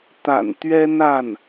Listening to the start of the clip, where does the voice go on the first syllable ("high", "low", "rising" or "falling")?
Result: low